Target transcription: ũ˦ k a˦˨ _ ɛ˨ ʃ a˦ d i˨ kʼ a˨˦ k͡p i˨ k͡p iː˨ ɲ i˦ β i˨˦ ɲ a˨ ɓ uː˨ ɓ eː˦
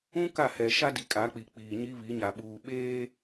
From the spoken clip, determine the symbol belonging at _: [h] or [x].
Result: h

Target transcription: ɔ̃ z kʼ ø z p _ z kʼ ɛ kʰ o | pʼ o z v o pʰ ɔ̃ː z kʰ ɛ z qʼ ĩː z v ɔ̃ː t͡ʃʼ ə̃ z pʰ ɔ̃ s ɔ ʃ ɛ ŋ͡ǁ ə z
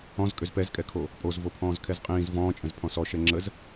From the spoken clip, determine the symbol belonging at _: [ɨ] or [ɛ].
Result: ɛ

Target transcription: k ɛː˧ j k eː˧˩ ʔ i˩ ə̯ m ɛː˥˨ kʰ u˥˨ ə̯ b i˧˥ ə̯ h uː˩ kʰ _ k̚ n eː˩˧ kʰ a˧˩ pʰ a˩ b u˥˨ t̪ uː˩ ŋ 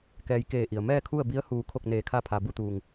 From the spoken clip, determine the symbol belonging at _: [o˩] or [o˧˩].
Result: o˧˩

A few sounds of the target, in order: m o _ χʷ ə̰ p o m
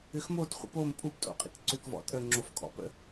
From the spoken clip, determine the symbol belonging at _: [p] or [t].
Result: t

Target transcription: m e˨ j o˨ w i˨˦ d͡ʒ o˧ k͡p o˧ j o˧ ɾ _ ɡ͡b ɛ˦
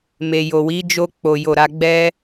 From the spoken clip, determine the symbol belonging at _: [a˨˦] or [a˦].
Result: a˦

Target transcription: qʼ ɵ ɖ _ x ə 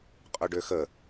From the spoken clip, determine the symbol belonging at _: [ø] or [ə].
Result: ø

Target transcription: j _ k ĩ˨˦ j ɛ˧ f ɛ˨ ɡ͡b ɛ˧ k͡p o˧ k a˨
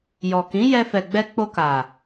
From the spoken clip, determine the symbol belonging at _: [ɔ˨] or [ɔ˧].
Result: ɔ˨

